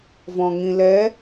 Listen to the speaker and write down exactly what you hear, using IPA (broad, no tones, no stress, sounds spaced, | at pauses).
v ɔ̃ ŋ ĩ l ɛ